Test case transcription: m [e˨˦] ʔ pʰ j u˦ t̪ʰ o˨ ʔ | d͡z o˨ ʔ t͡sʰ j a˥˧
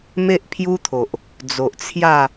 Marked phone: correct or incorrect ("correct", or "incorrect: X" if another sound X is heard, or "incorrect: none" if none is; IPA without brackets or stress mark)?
incorrect: e˦